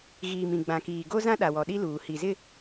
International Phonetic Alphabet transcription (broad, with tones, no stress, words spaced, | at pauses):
ɣiː˨m ĩ˨ ɡ͡bã˨kiː˨ ɡo˦zã˦ɗa˨ wɔ˨ɗi˦luː˨ hi˨zɪ˦